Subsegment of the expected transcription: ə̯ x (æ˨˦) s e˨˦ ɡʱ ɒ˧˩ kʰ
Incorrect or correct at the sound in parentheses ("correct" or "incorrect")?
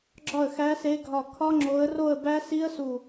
correct